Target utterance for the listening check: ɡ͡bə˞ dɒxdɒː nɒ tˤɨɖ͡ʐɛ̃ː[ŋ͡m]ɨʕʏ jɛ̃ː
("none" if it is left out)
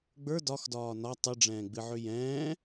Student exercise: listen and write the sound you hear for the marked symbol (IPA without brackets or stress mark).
ɡ͡b